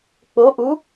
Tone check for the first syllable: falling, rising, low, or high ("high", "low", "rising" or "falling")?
rising